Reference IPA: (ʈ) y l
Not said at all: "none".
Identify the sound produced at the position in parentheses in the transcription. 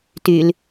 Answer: t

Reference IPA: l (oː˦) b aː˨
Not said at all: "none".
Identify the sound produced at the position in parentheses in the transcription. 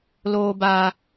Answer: oː˨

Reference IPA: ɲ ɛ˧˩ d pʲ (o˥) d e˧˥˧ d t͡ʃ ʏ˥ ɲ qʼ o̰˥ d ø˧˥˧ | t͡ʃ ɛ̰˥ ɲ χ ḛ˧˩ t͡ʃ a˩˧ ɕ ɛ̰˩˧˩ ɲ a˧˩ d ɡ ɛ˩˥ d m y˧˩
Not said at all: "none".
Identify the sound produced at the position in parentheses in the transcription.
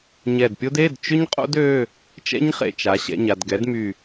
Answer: o˥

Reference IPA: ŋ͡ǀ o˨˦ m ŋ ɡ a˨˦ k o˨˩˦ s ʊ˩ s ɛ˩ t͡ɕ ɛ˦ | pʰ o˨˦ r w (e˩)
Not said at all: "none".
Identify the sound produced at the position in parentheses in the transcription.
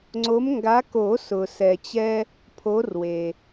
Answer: e˩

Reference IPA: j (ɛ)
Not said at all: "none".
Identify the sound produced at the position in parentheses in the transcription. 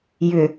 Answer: ʏ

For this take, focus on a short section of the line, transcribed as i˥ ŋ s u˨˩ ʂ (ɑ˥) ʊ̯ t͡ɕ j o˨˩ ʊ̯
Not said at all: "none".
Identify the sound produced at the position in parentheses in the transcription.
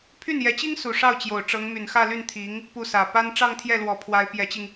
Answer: ɑ˥˩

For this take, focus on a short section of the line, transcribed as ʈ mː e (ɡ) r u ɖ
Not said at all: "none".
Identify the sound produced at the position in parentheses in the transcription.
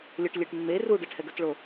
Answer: none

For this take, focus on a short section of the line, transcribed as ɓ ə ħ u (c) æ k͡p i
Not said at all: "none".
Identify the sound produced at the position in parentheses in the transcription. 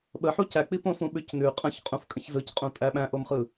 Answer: c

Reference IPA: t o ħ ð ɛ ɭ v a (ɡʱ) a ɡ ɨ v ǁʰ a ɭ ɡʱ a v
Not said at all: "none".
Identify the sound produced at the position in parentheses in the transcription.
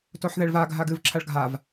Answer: ɡʱ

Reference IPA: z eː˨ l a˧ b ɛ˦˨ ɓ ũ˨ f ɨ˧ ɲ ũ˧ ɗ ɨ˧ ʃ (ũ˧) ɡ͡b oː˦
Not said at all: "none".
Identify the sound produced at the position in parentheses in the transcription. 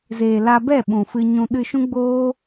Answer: ũ˦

